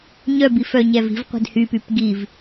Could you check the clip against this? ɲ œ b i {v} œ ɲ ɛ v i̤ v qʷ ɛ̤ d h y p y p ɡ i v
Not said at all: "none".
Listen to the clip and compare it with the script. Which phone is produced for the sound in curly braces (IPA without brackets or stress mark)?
f